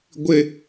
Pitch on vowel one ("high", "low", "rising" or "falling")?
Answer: high